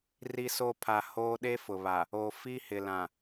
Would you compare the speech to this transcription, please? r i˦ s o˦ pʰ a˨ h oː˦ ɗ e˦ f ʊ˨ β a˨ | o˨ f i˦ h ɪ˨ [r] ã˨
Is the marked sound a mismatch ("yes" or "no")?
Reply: yes